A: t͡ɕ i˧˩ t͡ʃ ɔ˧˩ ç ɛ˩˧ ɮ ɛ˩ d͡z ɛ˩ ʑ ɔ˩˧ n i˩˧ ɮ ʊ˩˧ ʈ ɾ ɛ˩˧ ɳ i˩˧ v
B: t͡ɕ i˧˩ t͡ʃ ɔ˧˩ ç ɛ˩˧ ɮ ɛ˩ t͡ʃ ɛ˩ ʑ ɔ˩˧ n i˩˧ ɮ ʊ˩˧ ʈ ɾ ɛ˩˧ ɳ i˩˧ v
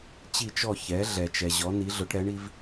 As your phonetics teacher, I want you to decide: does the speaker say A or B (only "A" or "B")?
B